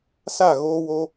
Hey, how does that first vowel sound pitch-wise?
falling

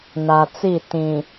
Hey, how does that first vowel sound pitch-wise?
low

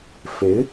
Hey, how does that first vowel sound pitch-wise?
rising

